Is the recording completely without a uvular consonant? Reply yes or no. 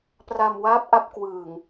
yes